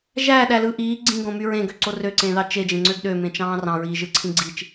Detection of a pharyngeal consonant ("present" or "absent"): absent